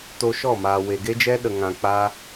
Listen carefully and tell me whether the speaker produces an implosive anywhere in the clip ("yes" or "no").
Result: yes